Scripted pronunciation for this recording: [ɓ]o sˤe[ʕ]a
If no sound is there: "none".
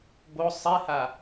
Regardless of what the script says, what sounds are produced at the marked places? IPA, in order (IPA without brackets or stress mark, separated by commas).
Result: b, h